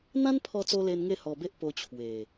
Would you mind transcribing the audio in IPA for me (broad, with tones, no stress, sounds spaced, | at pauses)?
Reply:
n̪ ã˦ n pʰ ɔ˧ t͡s o˧ l e˧ n ŋ e˥˧ h ɔ˧ b e˦ ʔ p o˧ t͡ɕʰ w e˨˩